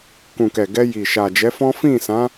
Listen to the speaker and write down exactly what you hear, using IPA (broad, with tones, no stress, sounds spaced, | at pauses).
k ũ˨ k ɛ˨ ɡ ɛ˧ j i˨ ʃ a˨ d͡ʒ ɛ˨˦ f ɔ̃˦ f ĩ˦˨ s ã˨˦